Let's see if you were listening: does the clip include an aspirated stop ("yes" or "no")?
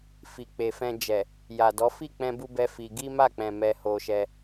no